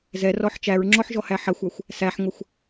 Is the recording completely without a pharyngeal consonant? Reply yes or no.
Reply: no